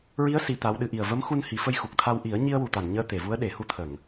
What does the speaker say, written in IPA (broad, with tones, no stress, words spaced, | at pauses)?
ɹi˧˥ə̯ si˧˥t̪a˧˥wɗɨ˧ ʔi˨˩ə̯və˧˥mxu˧n hi˨˩˦fə˧jxu˨˩k̚t̪ʰa˧w ʔi˨˩˦ə̯ɲi˧ə̯wu˨˩t̪a˨˩˨n ɲəː˧t̪e˨˩˨vu˧˥ə̯ ɗe˨˩˦hu˧t̪ʰə˨˩˨ŋ